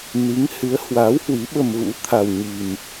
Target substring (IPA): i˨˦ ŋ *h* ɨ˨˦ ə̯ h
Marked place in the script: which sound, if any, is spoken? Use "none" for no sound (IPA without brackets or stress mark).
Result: h